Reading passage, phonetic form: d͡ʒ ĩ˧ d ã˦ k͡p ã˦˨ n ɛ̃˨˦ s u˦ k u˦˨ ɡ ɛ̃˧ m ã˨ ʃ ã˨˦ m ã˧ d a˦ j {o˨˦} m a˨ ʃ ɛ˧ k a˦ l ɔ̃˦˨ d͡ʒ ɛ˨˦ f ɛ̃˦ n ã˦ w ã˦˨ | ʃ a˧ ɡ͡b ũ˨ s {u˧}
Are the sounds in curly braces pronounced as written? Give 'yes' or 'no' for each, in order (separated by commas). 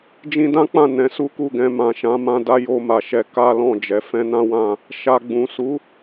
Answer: no, no